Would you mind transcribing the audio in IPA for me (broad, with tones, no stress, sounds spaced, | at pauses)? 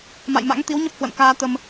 m a̰˧˨ j m a̰˧˥ ŋ t̪ i˨˦ w ɲ ə˦˥ p̚ h w ə̰˧˨ n k aː˧ t̪ ə˧ m